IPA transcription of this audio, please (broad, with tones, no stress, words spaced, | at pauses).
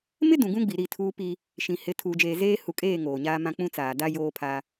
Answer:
mɪ˦ dũ˨ɡũ˦ɡ͡bi˨ ɾi˦˨tʰuː˦pi˦ | ʃĩ˨hɪ˨˦ tʰuː˨d͡ʒeː˨zeː˦ hu˨kʼeː˦˨ ŋoː˨ɲaː˦mã˦ k͡pũ˦t͡saː˨ da˦ joː˦pʰa˦